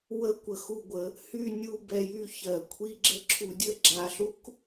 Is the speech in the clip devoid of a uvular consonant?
yes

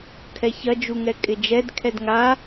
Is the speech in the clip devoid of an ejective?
no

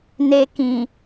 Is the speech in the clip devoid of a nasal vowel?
no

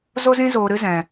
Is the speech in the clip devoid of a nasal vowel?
no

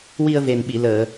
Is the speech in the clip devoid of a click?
yes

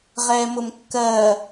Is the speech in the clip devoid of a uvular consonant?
no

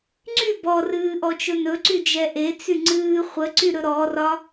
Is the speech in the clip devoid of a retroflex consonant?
yes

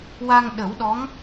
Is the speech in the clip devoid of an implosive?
no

